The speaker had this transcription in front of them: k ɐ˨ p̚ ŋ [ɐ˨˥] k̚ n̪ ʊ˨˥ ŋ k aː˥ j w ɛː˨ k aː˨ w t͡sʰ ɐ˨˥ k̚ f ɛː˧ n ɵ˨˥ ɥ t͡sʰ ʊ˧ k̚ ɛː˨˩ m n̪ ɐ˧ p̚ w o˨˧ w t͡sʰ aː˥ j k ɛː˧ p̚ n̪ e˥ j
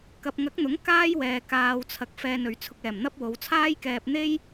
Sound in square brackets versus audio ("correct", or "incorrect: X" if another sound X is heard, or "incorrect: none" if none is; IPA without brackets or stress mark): correct